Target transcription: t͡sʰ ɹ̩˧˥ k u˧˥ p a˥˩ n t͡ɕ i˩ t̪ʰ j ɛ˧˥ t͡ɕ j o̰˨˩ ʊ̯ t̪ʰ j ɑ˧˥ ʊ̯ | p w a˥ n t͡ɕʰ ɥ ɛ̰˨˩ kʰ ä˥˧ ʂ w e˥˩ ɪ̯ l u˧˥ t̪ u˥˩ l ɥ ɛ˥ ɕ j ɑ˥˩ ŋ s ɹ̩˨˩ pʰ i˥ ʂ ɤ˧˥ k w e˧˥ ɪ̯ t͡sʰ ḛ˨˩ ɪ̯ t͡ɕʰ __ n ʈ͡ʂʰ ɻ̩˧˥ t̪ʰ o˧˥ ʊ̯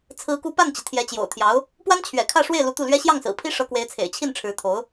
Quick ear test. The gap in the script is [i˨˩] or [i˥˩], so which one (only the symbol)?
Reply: i˥˩